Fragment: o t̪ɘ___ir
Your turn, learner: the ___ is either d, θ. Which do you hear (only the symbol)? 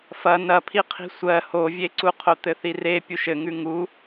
θ